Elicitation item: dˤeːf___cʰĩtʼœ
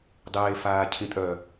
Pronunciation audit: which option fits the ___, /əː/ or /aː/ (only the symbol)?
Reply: aː